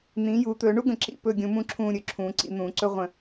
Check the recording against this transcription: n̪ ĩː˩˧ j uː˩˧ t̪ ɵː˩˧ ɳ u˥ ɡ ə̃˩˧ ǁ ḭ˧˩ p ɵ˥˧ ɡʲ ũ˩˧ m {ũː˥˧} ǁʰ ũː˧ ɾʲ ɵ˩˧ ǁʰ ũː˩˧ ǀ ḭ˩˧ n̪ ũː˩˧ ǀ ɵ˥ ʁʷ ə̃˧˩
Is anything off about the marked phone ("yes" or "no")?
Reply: yes